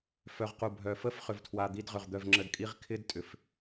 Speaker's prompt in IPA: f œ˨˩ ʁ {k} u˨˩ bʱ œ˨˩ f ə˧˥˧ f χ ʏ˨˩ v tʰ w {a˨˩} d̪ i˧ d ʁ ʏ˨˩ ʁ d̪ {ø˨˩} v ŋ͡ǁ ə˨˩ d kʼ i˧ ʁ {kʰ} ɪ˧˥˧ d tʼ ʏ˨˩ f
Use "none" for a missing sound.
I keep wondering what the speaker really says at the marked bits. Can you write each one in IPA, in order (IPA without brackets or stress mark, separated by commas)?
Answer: q, a˨˩, œ˨˩, kʰ